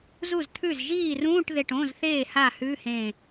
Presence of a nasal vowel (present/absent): present